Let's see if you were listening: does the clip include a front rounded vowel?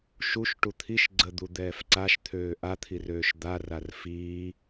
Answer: yes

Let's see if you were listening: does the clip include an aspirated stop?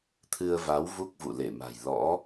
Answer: yes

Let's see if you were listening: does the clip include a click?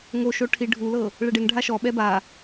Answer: no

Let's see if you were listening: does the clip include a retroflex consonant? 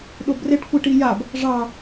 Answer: yes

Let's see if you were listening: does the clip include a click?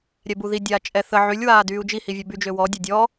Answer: no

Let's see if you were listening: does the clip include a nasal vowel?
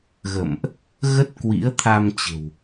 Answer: no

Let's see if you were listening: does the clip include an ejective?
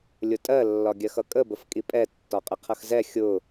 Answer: yes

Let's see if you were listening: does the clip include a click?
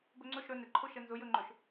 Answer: yes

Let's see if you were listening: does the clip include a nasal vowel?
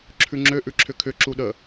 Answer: no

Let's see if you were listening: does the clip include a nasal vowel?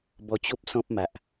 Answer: yes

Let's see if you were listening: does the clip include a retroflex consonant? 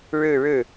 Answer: yes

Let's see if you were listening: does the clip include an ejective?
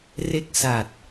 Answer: no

